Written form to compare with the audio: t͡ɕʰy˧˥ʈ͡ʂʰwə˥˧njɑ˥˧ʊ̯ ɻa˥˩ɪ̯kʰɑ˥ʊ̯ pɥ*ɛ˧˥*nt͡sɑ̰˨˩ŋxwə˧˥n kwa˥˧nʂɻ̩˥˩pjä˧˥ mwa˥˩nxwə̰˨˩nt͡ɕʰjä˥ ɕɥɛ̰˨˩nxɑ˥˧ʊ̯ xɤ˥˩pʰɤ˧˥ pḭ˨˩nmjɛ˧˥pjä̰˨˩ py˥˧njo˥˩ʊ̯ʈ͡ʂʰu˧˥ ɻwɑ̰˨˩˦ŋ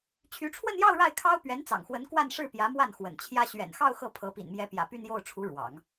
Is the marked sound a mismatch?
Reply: no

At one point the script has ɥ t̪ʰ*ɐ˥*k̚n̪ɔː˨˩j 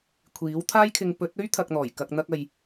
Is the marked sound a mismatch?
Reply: yes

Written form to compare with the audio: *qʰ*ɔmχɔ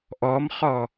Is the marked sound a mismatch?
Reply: yes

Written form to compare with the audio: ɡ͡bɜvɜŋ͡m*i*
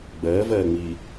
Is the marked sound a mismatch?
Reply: no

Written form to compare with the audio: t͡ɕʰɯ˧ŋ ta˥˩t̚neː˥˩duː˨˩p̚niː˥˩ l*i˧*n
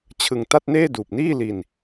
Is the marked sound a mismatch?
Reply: no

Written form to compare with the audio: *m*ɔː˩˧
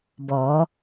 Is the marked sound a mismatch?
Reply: yes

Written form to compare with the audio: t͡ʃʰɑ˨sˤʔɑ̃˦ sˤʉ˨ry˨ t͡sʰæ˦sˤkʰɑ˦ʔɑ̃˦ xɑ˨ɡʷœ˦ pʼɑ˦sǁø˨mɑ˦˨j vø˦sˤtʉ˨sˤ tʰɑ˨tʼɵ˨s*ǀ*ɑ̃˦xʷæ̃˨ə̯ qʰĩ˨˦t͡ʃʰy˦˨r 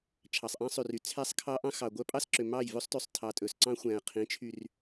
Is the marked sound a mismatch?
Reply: no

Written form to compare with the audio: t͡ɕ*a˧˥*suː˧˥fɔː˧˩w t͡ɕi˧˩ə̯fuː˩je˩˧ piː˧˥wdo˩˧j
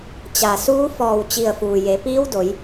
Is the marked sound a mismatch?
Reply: yes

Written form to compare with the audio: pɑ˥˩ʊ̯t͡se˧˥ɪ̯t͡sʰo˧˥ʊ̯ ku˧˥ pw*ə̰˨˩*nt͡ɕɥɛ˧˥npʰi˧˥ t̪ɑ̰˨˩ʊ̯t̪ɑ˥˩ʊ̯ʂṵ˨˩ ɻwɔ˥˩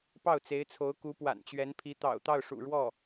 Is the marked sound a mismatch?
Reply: yes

